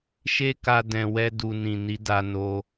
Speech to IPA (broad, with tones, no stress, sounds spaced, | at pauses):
ʃ e˦ k a˧ d ɛ̃˨ w ɛ˧ d u˨ n ĩ˨ n i˨˦ d a˧ n o˧